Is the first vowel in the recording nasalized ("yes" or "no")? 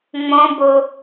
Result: yes